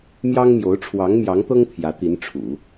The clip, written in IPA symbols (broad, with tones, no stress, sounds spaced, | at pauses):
m j ɑ˥ ŋ m j o˧˥ ʊ̯ ʈ͡ʂʰ w ɑ˧˥ ŋ m j ɑ˧˥ ŋ t̪ ɤ˥ ŋ t̪ʰ j ä˧˥ t̪ i˧˥ n ʈ͡ʂʰ ṵ˨˩˦